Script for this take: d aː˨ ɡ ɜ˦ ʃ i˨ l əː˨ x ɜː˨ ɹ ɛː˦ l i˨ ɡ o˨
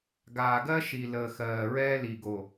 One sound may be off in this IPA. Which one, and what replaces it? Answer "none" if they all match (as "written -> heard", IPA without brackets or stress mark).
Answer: d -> ɡ